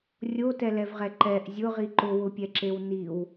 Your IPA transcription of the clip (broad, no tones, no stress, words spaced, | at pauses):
rʲotɛlɛvʁɛ ǃɛʔ zʲʊʁi ǃʊwʊpʲɛǁew niw